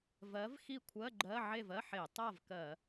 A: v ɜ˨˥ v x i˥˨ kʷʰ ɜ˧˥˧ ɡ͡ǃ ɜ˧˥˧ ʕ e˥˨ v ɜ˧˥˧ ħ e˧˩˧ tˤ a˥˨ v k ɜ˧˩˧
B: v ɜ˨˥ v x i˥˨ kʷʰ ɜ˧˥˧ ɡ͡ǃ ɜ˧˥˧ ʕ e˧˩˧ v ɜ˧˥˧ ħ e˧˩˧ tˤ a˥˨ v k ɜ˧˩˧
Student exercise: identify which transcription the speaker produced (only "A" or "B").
A